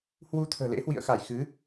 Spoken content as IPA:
h w u˧ t̪ʰ ə̤ː˨˩ l ḛ˧˥ h w ḭ˧˨ ə̯ x a˧˩ j x ɨ˨˦

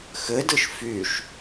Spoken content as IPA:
x ɘ d ɯ ʃ f y ʃ

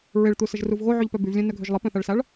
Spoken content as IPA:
ɹ e ɭ t̪ u s ə ʒ r u v ɣ o ʕ y ʎ p œ b y v lʲ œ̃ n œ ɡʱ ø ʒ lˠ ə p œ̃ θ a ɭ s a ɭ

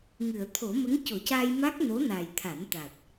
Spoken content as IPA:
ŋ ɨ˨˩˨ ə̯ t̪ʰ o˨˩˦ m ə˧˥ ŋ c o˨˩˦ c a˧ j m a˦˥ k̚ n o˧˥ n a˨˩ j t̪ʰ a˨˩˦ n t̪ a˨˩ t̚

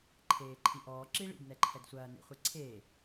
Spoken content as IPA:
ǃʰ eː ǃʰ i ʔ ɔː ǁ i ɭ ḭ d n ɛ ǃʰ ɛ d sʷ ɐː n ḛ χʷ e ǀʰ eː

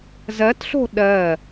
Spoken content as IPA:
z ɜ t ɬ o̤ ɗ ɜ

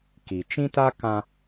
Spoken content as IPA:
k i˨ t͡ʃ ĩ˦ t a˦ k ã˦

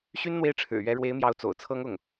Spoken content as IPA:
ɕ y˥ n n̪ w e˥˩ ɪ̯ ʈ͡ʂʰ ɻ̩˨˩ ɥ ɛ˧˥ ɻ w e˧˥ ɪ̯ m j ɑ˧˥ ʊ̯ t͡s o̰˨˩ ʊ̯ t͡sʰ ɤ˥ ŋ ʊ˥˩ ŋ

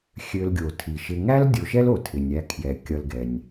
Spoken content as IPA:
xʲ ø˨ l ɡʲ o˩ tʰ i˩ ʃ ɪ˨ ŋ æ˦ l dʲ o˨ ʃ ɛ˥ l o˩ tʰ ɪ˩ nʲ æ˨ kʰ j ɛ˩ kʲ ʌ˨ l ɡ ɛ˩ nʲ

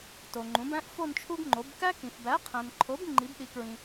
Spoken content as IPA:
t o˨ ŋ͡ǃ ũ˩˥ b æ̃˥ ʔ f o˥˧ n t͡ʃʰ u˥ ɡ ŋ͡ǃ o˩˥ b k æ˥ k ĩ˨ f b æ˩˥ qʰ æ̃˨ n ǃʰ o˩˥ b ŋ͡ǃ i˩˥ b ɗ i˩˥ k ɹ ĩ˨

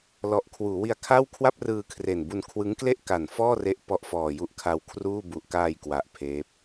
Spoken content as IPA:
l ɔ˨˩ ʔ kʰ w uː˩˦ w i˧ a̯ kʰ a˥˩ w kʰ w a˥˩ p̚ r ɯː˧ kʰ r e˨˩ n b u˧ n kʰ w ɯ˦˥ ŋ k l e˥˩ ʔ k a˨˩ n f ɔː˥˩ r e˦˥ ʔ p ɔ˦˥ ʔ f ɔː˧ j u˥˩ ʔ kʰ a˧ w kʰ r uː˥˩ b u˨˩ ʔ k aː˧ j k w a˨˩ ʔ pʰ eː˦˥ p̚

